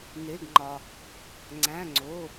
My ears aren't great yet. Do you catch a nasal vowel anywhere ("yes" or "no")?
yes